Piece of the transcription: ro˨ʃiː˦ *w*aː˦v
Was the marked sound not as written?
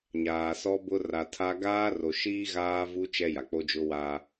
yes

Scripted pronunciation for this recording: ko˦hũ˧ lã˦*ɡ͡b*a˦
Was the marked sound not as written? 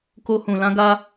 yes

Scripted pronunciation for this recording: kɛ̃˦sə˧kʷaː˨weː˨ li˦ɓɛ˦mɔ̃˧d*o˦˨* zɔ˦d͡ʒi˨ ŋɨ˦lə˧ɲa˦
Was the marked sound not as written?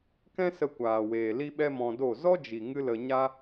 no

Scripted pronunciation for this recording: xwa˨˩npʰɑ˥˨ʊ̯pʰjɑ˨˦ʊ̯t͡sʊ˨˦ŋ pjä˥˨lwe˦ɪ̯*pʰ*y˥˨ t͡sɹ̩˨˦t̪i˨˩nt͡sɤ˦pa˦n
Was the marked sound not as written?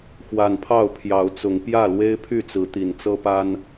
no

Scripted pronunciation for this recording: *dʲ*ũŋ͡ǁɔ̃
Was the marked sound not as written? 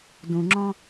yes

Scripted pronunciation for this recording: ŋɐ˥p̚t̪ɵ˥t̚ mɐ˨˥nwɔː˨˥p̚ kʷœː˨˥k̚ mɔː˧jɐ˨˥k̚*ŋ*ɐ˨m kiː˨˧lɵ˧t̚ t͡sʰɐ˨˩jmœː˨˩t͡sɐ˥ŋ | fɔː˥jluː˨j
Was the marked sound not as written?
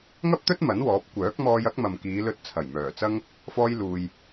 yes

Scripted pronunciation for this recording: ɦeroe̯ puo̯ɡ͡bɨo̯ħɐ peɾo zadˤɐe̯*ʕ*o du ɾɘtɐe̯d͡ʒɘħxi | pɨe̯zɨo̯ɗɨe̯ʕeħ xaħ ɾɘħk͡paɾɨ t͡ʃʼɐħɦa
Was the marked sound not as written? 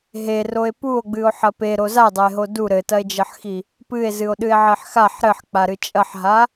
yes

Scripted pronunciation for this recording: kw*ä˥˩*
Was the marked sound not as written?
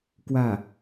no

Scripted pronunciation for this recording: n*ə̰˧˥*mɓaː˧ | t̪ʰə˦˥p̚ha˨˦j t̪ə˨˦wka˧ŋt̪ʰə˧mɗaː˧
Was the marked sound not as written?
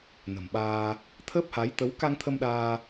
yes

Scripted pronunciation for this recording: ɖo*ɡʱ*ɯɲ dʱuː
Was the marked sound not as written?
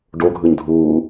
no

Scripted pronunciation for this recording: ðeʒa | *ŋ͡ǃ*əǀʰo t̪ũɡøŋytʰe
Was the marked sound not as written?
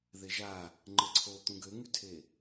no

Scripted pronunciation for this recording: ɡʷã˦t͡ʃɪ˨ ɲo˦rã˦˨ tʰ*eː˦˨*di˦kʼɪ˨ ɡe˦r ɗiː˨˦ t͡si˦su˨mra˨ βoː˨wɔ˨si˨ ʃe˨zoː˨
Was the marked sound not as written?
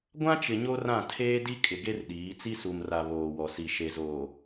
yes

